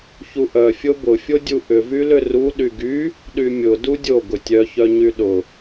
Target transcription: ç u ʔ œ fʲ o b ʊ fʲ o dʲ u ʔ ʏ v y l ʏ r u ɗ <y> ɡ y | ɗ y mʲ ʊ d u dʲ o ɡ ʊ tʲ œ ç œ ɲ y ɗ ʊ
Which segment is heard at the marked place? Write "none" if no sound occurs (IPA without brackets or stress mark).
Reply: y